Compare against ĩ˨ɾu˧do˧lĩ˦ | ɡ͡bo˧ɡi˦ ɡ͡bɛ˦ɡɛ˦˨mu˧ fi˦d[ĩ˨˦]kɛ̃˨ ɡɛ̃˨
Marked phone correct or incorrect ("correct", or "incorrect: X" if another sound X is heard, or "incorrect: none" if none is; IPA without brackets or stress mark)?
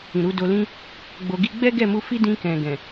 incorrect: ĩ˧